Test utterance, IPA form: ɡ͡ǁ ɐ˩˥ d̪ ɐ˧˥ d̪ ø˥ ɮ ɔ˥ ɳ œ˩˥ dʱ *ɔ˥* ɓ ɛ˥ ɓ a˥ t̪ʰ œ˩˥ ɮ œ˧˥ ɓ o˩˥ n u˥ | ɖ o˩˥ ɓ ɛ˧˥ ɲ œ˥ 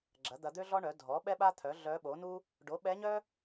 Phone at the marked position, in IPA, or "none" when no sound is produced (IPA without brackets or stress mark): ɔ˩˥